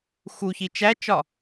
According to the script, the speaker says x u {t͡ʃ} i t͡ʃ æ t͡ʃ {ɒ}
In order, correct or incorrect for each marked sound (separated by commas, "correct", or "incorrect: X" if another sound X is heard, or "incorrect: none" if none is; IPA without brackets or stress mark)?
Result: incorrect: ç, correct